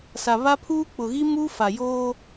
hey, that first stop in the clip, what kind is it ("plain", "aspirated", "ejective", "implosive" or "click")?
aspirated